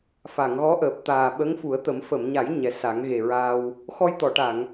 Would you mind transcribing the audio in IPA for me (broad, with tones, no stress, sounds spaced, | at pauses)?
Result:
f a˨˩˨ ŋ ɣ ɔ˧˥ ʔ əː˨˩ p̚ t̪ aː˨˩ ɓ ə˧˥ ŋ f u˨˩˦ ə̯ t̪ ə˨˩˦ m f ə˨˩˨ m ɲ a˨˩˦ j ɲ ɛ˨˩ s a˨˩˦ ŋ ɣ e˨˩ ɹ aː˧ w | x ɔ˧ j t̪ ɔ˨˩˨ ʈ a˨˩˨ ŋ